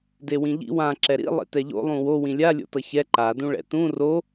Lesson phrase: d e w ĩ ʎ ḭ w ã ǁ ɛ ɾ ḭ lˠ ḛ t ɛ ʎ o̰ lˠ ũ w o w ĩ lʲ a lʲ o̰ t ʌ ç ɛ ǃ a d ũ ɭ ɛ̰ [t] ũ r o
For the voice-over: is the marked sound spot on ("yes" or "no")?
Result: yes